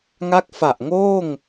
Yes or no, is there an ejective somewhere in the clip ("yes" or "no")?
no